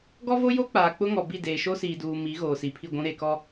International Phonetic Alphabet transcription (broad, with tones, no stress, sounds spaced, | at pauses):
ɡ ɔ˦ v o˦ j o˦ k͡p aː˨ k͡p ʊ˦ ŋ ɔ˨ b i˦˨ d eː˨ ʃ o˦ s iː˨ d uː˨ m i˨˦ ɣ oː˨ s i˨ pʰ i˦˨ ɡʷ ũ˦ ɾ e˨ k ɔ˦